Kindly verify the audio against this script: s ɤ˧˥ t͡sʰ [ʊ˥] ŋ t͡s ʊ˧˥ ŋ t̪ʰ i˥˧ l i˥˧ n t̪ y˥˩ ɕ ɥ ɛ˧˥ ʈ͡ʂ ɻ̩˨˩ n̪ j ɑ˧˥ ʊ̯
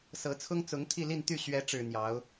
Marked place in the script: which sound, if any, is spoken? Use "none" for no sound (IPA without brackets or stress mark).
ʊ˥